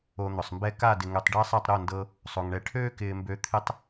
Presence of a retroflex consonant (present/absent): present